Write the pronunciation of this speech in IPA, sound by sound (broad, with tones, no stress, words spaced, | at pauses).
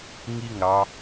ŋi˦˨ŋɾɑ˧